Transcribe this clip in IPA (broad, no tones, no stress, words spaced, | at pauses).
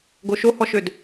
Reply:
ɡoʃohɔʃød